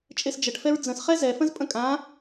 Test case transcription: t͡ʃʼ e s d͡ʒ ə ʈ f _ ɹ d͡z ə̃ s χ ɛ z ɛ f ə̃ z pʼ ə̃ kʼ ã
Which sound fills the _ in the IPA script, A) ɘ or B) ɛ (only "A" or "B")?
B